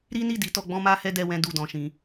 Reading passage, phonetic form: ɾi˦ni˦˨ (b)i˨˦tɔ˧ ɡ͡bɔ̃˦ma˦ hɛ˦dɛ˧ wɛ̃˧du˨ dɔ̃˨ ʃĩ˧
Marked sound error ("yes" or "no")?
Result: yes